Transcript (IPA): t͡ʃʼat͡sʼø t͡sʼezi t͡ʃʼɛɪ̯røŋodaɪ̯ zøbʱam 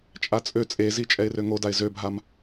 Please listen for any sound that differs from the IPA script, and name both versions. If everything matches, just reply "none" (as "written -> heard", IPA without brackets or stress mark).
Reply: none